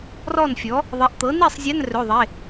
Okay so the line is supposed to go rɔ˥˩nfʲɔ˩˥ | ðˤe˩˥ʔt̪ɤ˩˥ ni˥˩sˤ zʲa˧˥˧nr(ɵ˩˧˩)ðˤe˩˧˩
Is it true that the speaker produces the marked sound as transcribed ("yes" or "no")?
yes